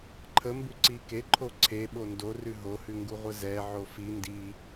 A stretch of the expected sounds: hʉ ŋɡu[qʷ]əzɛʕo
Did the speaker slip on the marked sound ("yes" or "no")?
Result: yes